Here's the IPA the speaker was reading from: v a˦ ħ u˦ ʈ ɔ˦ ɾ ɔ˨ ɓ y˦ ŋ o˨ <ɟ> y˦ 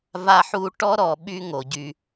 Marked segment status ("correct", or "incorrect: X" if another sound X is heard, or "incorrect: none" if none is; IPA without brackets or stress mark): correct